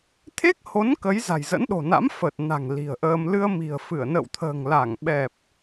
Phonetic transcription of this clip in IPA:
t̪ʰe˦˥k̚ho˨˦n kə˨˦j za̤˨˩jzə̰˧˥nɗo̤˨˩na̰˧˥m fə˨˩t̚na̤˨˩ŋ li̤˨˩ə̯ʔəː˧m lɨ˧ə̯mi̤˨˩ə̯fɨ˧˩ə̯ nə̰˧˨wt̪ʰə̤ː˨˩ŋla˧˩ŋ ɓɛ˨˩p̚

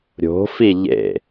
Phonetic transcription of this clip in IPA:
ɾʲo̤fi ʎḛ

